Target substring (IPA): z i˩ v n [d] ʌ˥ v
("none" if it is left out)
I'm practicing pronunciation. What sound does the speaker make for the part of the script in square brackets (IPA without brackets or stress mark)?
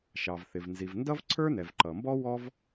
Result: d